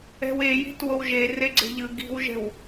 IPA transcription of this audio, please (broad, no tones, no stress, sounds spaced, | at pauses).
ɛ̤ w e j i̤ t w o w ʒ e r e ɡ͡ǀ e̤ ʎ ɯ ɡ i̤ w ʒ ɛ̤ w